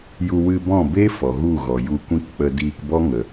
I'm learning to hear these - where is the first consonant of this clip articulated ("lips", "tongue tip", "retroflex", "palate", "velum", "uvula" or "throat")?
palate